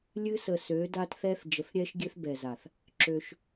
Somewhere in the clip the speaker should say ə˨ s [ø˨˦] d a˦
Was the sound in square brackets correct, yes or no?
yes